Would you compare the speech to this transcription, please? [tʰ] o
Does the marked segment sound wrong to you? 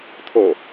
no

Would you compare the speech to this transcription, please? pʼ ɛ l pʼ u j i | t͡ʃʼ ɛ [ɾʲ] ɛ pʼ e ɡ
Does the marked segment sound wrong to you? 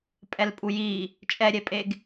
no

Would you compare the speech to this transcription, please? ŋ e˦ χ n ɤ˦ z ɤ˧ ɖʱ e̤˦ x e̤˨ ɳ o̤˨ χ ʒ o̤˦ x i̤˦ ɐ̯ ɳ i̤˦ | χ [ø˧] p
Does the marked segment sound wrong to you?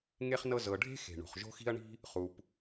yes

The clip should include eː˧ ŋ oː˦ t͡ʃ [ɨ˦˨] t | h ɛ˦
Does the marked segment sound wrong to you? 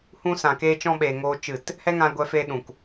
no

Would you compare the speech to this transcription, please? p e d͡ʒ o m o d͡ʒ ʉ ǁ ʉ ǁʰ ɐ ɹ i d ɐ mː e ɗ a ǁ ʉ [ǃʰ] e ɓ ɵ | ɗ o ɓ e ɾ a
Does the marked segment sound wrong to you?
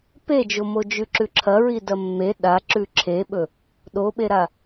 yes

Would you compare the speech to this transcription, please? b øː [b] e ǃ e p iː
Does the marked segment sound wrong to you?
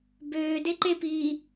yes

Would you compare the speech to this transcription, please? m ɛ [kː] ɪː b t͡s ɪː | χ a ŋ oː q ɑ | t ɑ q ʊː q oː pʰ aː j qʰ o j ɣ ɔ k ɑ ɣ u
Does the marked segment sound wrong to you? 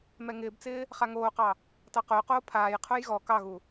yes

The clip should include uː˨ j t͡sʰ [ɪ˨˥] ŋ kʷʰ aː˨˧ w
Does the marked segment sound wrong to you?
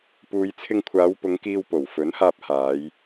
yes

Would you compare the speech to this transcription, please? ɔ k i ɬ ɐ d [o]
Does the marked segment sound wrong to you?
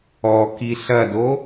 no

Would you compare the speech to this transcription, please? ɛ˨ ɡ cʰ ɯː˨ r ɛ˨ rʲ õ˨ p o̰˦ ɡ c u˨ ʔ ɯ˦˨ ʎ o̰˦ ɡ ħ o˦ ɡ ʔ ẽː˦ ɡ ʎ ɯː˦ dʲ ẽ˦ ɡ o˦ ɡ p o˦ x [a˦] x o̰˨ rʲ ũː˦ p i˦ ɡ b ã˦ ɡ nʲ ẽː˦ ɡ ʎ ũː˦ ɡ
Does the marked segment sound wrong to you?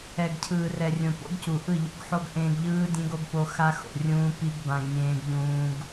no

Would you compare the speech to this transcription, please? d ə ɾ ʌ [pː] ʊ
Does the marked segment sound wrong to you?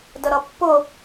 no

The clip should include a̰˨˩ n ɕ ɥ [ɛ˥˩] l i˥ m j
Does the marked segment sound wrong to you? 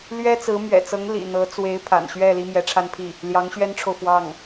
no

